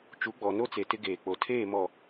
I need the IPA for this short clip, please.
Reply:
t͡ʃ u˨˦ ɡ͡b ɔ˨ n o˦ t͡s e˨ t ɪ˦ ɡ eː˨ k͡p o˨ tʰ eː˦˨ m ɔ˨

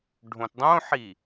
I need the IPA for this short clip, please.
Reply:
ɖʱ õ t dˤ õ ħ i

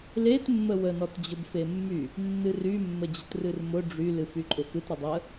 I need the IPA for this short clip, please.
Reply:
l e t mː ə w ə n ɔ t d͡ʑ ʊ b f e mː y | nː ɨ r y mː ə d͡ʑ ʊ t r ɨ r m ʊ ɖ͡ʐ y l ɨ f y ǃʼ ʊ f ɨ t ɾ ʊ dˤ ə

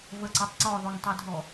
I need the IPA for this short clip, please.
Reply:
v ə ǀ ɑ tˤ ǀ ɔ ðˤ o ŋ tˤ ɛ dʱ ɔ

